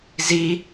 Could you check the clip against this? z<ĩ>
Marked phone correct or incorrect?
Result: incorrect: i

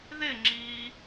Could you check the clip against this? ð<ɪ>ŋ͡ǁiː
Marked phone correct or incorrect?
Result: correct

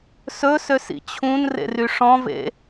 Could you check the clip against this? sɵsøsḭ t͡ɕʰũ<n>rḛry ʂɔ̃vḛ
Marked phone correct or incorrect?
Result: correct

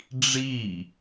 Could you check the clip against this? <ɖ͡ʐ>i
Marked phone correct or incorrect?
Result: correct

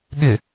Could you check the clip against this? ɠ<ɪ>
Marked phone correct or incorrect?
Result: correct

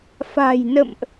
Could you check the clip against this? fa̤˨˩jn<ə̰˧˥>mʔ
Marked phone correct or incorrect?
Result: incorrect: ə̰˧˨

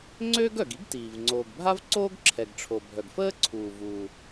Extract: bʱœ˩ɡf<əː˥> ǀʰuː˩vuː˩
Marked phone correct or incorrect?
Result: correct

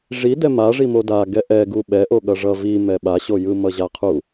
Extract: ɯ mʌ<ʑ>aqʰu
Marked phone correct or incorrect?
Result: correct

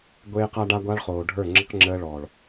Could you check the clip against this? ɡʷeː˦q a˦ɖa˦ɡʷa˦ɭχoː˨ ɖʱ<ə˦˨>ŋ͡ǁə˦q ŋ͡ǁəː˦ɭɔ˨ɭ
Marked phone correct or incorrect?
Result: incorrect: ə˞˦˨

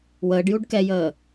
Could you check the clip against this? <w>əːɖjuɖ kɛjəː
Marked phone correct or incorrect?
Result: correct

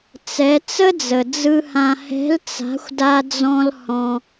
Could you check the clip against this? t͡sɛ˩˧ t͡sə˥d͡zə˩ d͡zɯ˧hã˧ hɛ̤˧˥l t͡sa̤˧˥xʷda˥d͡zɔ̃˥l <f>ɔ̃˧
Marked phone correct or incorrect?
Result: incorrect: h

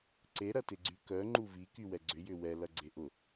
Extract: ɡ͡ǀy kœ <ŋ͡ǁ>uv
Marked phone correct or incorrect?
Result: incorrect: ŋ͡ǃ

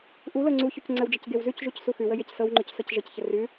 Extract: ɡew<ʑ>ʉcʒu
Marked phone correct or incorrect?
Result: incorrect: z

